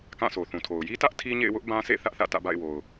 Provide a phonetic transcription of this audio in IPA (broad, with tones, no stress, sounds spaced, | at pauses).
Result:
k ã˦˨ s o˨ θ ũ˨ tʰ o˨ ʊ̯ j i˦ t ä˦ ʔ tʰ i˦ ɲ ḛ˦˨ ɪ̯ w ʊ˦ ʔ b ã˦ s ḛ˦˨ θ ä˦ ʔ θ ä̰˦˨ t ä̰˦˨ b a̰˦˨ ɪ̯ w o˨ ʊ̯